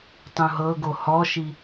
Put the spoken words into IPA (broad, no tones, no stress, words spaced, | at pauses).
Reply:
tˤũɦɤɡo hɔʃi